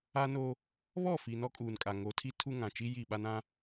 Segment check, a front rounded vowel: absent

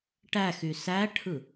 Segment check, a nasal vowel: absent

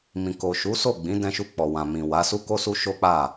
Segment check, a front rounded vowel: absent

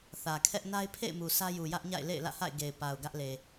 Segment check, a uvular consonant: absent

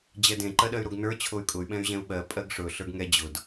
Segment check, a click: present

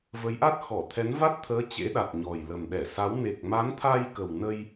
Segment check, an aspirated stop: present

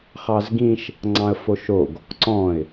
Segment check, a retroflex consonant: absent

